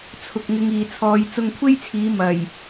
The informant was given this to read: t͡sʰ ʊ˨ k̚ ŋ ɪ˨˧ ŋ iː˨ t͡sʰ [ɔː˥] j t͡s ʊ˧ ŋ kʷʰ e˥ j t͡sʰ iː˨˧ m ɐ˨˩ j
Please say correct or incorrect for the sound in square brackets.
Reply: incorrect